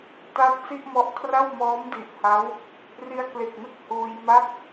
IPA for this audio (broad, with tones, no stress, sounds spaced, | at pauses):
t a˦˥ t̚ s i˥˩ ʔ m ɔ˦˥ ʔ kʰ r a˥˩ w m ɔː˦˥ m d i˨˩ ʔ h a˦˥ w | r i˧ a̯ k l e˨˩ k̚ n ɯ˥˩ k̚ h uː˧ j m a˥˩ k̚